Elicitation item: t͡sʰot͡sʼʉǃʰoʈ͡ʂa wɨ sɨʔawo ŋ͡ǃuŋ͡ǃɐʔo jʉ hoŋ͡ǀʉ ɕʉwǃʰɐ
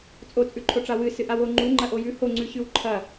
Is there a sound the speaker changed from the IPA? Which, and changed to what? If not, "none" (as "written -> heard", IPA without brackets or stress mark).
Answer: t͡sʰ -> t͡sʼ